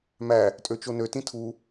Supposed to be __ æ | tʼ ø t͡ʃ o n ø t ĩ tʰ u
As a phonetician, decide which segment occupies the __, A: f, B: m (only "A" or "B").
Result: B